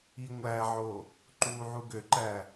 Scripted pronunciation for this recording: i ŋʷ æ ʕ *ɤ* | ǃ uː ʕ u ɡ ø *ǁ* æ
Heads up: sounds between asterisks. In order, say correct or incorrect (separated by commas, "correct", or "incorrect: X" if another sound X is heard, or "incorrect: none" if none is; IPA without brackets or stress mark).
incorrect: o, incorrect: ǃ